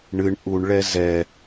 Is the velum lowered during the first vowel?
no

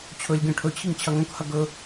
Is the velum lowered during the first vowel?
no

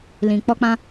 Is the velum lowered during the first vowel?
yes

